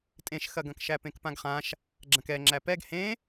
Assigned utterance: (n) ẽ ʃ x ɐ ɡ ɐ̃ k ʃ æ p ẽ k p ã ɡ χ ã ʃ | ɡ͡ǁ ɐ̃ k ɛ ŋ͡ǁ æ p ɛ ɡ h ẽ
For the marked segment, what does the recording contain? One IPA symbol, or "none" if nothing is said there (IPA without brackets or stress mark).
tʼ